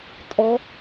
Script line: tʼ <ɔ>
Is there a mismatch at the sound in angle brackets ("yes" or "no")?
no